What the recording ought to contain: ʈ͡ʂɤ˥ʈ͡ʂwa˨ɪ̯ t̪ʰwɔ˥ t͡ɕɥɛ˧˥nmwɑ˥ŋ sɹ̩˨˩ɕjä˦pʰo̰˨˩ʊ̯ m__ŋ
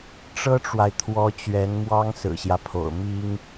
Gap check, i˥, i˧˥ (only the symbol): i˥